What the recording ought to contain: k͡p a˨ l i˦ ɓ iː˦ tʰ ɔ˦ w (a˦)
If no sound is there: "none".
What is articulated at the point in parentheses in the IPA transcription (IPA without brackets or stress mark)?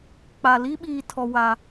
a˦